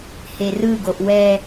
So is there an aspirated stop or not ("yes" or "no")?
no